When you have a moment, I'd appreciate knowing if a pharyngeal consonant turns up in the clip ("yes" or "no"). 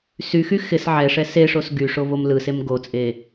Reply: yes